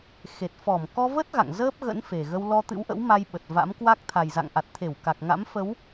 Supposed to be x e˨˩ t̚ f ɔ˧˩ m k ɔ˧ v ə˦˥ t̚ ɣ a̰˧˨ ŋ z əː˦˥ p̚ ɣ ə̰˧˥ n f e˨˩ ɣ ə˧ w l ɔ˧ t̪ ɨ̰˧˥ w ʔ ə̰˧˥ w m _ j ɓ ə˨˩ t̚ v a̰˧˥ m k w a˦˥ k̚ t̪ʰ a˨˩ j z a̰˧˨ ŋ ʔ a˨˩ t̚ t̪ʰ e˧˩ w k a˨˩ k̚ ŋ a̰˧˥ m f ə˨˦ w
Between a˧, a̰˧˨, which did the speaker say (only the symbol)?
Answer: a˧